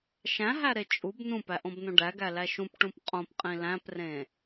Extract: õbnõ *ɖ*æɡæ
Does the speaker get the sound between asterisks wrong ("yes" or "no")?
no